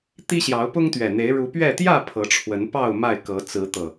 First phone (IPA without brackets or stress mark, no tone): t̪